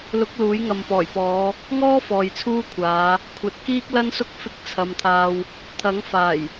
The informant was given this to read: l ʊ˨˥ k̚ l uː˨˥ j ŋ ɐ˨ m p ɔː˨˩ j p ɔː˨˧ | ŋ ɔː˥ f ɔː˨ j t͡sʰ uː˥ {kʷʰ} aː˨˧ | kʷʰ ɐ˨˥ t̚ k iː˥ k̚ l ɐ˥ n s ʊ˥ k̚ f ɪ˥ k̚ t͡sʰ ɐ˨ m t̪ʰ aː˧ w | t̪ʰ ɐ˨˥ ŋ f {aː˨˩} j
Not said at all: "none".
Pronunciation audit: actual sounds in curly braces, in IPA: kʷʰ, aː˨˩

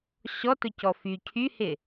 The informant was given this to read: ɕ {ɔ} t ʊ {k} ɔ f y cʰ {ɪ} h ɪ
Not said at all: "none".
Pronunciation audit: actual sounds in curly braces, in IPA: ɔ, c, y

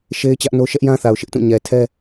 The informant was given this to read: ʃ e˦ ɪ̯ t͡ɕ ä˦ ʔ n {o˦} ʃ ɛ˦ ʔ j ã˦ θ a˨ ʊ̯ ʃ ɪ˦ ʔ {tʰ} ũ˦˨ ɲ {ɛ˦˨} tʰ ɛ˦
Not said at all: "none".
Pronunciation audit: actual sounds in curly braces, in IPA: o˦, t, ɛ˨

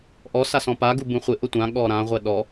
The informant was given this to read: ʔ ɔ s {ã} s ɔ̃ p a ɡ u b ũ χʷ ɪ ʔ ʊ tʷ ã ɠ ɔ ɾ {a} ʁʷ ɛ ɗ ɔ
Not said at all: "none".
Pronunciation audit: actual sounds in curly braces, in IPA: a, ã

